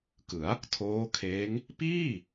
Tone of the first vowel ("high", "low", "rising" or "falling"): rising